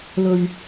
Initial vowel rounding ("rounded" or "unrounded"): rounded